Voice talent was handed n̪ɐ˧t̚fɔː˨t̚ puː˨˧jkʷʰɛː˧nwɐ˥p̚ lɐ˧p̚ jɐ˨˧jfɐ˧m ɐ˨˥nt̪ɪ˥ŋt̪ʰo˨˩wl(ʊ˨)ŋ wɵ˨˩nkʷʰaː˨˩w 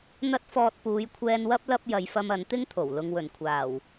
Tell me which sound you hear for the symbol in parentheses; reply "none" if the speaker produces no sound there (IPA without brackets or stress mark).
ʊ˨